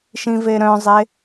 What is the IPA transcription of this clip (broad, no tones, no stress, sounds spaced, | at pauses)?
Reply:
ʃ ĩ v e ɾ œ̃ zˤ e